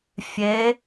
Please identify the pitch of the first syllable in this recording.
rising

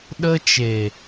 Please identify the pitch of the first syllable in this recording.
high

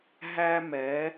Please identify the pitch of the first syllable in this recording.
high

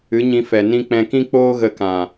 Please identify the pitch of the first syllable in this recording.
rising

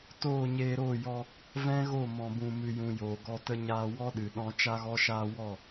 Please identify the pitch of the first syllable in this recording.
falling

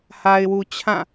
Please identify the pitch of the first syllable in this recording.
low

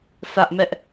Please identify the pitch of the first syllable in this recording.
high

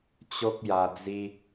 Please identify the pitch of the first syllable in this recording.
high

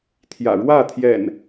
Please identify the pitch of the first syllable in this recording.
low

